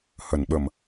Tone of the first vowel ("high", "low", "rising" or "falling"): low